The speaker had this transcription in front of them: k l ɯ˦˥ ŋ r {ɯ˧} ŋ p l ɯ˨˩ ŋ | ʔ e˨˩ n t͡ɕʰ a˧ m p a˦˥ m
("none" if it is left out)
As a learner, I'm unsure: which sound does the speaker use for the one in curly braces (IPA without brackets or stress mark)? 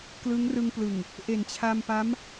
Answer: ɯ˧